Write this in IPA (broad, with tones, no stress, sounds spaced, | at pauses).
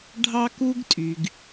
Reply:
ɖʱ ɑ˦ k u˦ ɡ tʼ y˨ ɡ